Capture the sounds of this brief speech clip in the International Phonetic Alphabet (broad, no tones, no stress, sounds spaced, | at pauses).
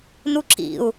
n u ǁ ḭ u̯